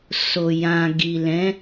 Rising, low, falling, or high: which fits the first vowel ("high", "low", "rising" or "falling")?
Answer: low